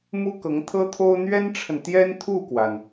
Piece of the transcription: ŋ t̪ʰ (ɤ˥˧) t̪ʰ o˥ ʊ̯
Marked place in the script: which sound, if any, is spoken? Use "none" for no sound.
ɤ˥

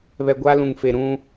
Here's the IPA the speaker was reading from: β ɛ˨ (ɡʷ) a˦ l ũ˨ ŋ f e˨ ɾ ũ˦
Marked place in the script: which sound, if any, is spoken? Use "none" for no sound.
ɡʷ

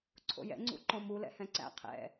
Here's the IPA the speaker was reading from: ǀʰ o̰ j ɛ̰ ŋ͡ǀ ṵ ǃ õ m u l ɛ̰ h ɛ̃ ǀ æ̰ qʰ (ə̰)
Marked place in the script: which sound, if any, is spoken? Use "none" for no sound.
ɛ̰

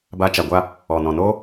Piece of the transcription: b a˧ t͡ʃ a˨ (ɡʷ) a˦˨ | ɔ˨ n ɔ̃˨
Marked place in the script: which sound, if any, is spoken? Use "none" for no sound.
ɡʷ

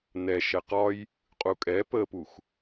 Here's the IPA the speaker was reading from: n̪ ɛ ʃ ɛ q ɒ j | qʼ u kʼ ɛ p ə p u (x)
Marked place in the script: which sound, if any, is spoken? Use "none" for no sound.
x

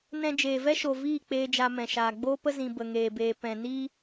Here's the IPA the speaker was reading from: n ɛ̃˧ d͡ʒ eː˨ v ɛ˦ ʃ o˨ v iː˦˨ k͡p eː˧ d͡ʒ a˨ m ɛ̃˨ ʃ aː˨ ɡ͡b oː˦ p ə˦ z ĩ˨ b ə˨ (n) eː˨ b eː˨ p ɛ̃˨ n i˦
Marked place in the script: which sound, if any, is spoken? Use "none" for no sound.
ŋ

